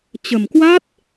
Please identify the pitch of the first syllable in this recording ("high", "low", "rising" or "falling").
low